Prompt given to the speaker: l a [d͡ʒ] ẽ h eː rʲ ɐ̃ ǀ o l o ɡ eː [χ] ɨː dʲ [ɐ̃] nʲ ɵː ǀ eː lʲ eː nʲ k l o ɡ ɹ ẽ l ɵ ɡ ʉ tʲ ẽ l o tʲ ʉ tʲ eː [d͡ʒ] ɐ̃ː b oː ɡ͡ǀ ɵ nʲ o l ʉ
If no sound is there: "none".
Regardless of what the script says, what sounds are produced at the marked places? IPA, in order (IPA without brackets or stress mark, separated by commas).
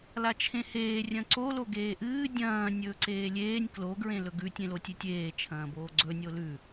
t͡ʃʰ, ʔ, ɐ̃ː, t͡ʃʰ